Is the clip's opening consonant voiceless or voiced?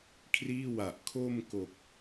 voiceless